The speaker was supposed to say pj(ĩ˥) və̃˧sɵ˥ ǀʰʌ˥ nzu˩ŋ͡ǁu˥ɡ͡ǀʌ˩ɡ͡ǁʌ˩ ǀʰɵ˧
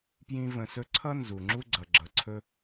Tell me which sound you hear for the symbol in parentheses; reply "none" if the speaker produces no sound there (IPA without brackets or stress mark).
ĩ˥